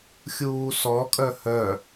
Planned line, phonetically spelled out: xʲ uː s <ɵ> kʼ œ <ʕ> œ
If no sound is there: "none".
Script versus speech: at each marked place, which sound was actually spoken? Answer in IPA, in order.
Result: ɔ, h

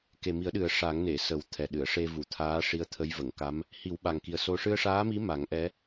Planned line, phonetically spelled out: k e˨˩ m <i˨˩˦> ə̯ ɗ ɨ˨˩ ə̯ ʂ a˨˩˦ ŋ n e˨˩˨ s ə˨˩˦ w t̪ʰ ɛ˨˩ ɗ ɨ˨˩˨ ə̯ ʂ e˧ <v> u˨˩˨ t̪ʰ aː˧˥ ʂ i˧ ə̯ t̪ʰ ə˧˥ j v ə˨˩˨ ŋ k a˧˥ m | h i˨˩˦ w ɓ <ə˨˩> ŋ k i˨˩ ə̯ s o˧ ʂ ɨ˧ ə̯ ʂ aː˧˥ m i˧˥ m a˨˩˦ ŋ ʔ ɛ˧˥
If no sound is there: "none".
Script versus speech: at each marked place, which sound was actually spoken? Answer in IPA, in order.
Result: i˨˩˦, v, a˨˩

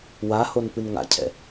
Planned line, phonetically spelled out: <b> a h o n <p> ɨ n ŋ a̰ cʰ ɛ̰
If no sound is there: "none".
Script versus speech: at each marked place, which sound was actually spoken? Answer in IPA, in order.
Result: w, p

